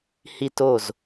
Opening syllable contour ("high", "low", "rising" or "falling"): falling